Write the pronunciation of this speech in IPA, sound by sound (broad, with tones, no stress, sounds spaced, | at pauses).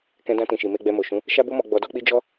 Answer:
k ɛ̃˧ d ã˧ t ĩ˨ ʃ i˨ m e˧ ɡ͡b ɛ˧ m o˨ ʃ ũ˨˦ | ʃ a˦ b o˦ m ɔ˧ ɡ͡b ɔ˧ d ɔ˦ k͡p i˦ d͡ʒ ɔ˦